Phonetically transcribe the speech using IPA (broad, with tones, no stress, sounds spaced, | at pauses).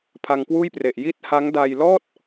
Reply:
pʰ a˧ ŋ k w uː˥˩ j p r e˨˩ ʔ j i˦˥ t̚ h a˦˥ ŋ d a˧ j l ɔː˥˩ t̚